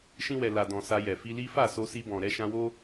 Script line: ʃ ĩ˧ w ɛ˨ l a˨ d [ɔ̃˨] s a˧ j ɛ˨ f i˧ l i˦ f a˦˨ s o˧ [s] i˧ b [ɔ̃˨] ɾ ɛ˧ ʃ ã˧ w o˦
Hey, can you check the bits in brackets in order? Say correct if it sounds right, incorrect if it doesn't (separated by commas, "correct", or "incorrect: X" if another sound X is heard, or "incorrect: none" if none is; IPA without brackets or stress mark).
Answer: correct, correct, correct